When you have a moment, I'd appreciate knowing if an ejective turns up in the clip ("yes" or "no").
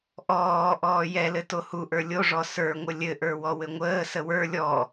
no